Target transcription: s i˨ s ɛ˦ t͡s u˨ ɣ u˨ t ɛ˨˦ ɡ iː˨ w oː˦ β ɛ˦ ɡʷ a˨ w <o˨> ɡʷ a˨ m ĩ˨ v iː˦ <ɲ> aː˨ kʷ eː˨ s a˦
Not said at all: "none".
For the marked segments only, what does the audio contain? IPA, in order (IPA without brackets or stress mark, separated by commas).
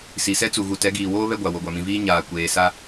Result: o˨, ɲ